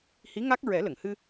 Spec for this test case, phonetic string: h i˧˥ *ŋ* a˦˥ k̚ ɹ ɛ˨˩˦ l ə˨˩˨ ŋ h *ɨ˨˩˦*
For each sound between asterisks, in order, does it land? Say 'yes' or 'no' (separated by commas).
yes, no